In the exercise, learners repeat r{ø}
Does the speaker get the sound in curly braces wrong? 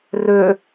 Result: no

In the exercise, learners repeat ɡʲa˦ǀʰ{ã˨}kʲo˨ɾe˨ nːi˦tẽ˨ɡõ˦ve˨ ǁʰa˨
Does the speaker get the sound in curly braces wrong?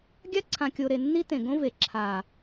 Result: no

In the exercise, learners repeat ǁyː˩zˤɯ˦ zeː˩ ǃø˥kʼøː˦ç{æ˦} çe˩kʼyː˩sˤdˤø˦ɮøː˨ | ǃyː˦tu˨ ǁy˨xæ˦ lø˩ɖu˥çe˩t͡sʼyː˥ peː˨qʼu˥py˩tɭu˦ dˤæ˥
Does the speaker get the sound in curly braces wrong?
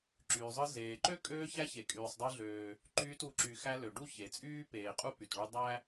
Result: no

